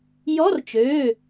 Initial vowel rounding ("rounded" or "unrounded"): rounded